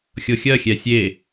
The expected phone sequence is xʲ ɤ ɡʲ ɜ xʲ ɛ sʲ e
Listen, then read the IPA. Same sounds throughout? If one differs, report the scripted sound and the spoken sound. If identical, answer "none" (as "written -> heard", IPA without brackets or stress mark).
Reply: ɡʲ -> xʲ